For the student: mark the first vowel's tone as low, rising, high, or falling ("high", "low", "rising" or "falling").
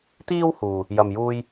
high